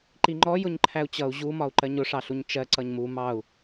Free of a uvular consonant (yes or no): yes